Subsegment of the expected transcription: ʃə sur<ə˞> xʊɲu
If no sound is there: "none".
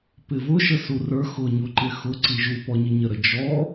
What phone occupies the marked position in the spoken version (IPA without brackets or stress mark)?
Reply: ə˞